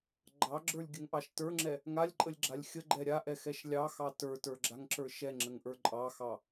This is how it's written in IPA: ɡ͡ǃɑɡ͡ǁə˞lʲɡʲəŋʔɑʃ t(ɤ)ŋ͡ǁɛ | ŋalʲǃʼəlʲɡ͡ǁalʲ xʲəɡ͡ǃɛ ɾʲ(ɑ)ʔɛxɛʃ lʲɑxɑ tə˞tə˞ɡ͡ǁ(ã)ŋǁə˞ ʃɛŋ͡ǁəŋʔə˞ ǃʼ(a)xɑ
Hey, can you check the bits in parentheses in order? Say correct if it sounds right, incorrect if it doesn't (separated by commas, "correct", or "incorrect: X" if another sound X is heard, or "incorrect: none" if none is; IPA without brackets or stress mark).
incorrect: ə˞, incorrect: a, incorrect: a, incorrect: ɑ